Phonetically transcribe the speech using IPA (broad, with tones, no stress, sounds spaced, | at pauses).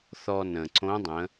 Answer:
θ ɔ˧ n ə̃˩ ǀ õ˧˥ dˤ ə̃˩˧